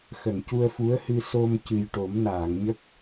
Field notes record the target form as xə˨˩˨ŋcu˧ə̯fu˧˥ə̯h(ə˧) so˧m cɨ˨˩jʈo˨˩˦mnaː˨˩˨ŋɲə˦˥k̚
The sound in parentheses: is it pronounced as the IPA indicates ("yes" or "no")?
no